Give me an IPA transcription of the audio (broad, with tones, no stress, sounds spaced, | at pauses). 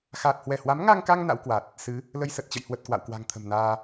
x aː˨˩ t̚ h w ɛ˧˩ h w a˨˦ m ŋ a˧ ŋ k a˧ ŋ n a̰˧˥ w k w a˨˩ t̚ | s ɨ˨˦ | l ə˧ j s ə˨˩ t̚ t͡ɕ ə̰˧˨ j h w ə˨˩ t̚ k w a̰˧˨ w k w a̤˨˩ ŋ t̪ʰ ə̤˨˩ m n aː˧